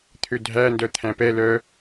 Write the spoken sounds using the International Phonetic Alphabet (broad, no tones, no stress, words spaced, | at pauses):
t̪ʰødʱændœ t̪ʰæ̃pɛ lœ